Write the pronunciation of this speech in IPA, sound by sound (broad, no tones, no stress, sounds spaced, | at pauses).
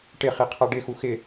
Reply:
ʈ ɪ χ i qʰ a ɖ ɪ x u x ɪ